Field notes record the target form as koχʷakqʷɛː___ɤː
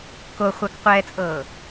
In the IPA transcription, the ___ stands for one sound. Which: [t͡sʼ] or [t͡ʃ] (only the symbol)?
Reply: t͡sʼ